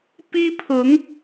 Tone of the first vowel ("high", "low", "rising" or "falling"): high